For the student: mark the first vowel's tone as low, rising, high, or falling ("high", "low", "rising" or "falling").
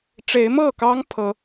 rising